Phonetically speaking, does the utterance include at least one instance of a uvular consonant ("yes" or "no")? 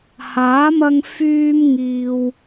no